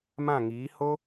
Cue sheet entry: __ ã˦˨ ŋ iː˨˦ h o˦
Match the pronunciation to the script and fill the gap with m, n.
m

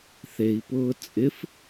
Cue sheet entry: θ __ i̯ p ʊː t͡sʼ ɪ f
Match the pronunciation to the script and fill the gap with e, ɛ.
e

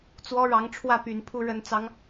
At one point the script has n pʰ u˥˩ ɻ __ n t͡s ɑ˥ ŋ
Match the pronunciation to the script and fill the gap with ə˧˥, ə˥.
ə˥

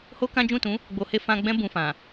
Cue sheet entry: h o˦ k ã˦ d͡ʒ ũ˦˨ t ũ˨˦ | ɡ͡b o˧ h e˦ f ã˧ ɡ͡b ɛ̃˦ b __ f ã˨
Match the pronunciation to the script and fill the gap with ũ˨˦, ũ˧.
ũ˧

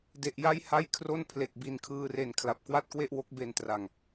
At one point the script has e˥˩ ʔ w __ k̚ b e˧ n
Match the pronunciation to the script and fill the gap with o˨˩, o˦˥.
o˦˥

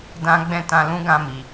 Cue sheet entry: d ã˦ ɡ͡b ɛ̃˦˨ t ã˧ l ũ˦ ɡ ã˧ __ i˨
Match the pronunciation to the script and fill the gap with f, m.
m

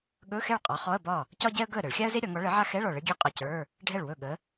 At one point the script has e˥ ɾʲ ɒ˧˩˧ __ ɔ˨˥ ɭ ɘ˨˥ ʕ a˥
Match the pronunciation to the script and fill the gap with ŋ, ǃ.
ŋ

